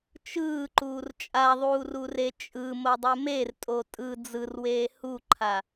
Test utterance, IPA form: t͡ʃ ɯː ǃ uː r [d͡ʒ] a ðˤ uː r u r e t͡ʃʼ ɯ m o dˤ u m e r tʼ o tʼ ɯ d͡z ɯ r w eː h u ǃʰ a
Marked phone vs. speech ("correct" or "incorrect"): incorrect